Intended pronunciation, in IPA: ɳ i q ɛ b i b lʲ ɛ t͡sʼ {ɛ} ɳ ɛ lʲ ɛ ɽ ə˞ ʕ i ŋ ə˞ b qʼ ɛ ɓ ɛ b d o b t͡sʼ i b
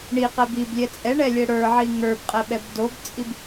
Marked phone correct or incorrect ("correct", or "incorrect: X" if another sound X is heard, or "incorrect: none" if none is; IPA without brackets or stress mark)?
correct